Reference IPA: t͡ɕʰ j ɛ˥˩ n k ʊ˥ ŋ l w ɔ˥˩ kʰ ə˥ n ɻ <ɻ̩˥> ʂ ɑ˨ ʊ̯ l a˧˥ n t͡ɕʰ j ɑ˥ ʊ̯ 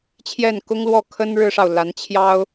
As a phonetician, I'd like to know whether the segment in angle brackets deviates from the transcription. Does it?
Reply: no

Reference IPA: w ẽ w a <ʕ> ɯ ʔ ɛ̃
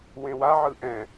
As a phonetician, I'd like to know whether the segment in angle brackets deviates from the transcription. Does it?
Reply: no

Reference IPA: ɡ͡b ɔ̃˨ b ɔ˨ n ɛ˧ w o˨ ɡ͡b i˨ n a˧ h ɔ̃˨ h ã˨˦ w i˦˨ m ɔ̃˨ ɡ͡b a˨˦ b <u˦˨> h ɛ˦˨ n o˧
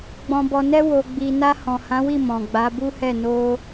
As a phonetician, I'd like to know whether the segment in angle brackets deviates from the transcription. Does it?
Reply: yes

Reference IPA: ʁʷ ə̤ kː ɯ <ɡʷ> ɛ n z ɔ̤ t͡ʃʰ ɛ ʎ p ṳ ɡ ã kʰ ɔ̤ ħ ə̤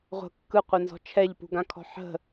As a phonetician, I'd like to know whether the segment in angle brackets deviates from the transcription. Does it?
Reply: yes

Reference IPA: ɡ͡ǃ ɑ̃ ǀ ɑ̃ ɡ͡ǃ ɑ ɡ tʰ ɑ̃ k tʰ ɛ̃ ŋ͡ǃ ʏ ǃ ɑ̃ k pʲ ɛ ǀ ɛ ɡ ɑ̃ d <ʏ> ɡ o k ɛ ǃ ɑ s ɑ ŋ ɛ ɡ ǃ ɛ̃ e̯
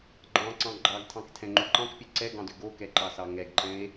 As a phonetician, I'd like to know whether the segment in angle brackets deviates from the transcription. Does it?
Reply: no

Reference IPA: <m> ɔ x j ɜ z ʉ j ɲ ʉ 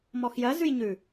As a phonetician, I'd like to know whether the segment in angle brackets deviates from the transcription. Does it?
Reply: no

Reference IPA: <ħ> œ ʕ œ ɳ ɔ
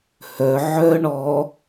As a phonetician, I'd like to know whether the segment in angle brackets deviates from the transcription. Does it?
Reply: yes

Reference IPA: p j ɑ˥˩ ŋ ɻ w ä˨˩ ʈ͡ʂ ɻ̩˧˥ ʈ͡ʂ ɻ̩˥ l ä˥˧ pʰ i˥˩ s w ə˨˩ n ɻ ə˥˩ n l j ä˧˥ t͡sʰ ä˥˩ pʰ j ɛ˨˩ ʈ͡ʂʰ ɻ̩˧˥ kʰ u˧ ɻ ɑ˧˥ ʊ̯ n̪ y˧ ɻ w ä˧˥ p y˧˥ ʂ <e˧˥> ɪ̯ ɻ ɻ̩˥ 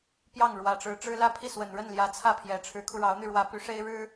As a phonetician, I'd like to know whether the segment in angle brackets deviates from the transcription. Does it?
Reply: yes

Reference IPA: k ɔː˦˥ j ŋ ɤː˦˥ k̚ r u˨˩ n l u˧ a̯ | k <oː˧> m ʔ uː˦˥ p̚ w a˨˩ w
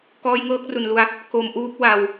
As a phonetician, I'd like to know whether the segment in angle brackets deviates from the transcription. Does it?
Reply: yes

